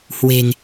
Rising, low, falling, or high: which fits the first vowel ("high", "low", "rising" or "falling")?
low